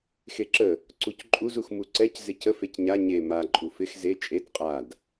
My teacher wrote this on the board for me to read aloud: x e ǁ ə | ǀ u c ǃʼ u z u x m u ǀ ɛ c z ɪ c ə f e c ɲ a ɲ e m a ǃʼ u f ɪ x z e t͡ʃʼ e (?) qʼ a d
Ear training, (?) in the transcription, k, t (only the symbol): t